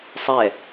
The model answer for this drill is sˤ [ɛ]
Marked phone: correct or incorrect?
correct